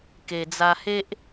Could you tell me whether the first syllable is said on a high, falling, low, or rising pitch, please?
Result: low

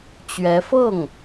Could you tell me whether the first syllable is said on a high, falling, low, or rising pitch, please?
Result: rising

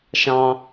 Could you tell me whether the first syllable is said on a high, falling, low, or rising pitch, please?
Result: high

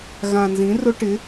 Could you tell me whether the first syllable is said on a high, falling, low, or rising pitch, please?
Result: low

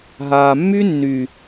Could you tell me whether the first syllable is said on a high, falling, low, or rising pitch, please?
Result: low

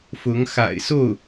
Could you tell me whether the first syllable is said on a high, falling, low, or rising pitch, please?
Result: rising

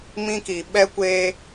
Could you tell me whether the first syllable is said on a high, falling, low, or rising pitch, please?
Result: high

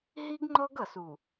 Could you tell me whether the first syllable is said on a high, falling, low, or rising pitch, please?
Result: high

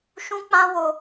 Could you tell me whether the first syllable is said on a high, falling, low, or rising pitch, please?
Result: high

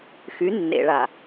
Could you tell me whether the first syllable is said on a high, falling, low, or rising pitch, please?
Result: rising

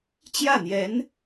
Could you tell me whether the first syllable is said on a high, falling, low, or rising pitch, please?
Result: falling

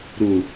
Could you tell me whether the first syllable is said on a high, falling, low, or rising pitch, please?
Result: low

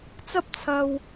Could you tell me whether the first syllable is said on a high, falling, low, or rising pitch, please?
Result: high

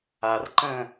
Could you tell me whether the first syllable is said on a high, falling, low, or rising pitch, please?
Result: low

